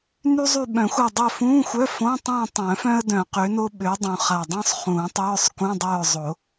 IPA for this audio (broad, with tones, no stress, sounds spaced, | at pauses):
n y˥ zˤ y˦˨ ɓ œ̃˨˩˦ xʷ a˦˨ dˤ œ˦˨ f ũː˧˥˧ xʷ œ˧˥˧ f õ˧˥˧ tˤ ũː˦˨ tˤ œ̃˨˩˦ f œ̃˥ ə̯ d œ̃˨˩˦ q ø˨˥ n o˥ ɓ ø˨˥ dˤ ũ˨˩ χ a˨˩ dˤ œ̃˥ sˤ χ ũː˨˩˦ tˤ œː˧˥˧ sˤ k ũ˧˥˧ dˤ œː˦˨ zˤ o˨˩˦